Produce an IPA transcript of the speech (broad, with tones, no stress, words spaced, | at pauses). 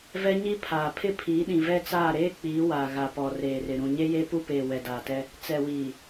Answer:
vɛ˦ɲi˦pʰaː˨ pʰɪ˦pʰiː˨˦ɗĩ˨ vɛ˦t͡saː˦˨ ɾeː˦k͡piː˨˦ wa˨ ɣa˨pɔ˨reː˨rɪ˨ ɾũ˨ɲe˦je˦ pu˦peː˨ wɛ˨daː˨tɛ˦ | t͡sɛ˨wiː˨